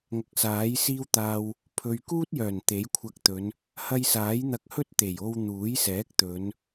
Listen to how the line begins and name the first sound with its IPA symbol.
ŋ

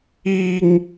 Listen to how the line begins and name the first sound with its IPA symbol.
i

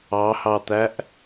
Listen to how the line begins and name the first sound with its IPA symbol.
ɑ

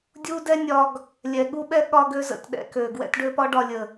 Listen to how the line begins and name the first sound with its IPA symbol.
dʲ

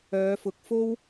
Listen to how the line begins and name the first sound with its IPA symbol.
œː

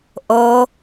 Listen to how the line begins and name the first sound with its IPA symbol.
ʔ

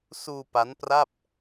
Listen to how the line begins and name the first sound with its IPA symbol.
s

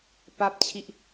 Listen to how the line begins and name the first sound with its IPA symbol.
p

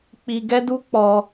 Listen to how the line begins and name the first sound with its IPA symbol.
k͡p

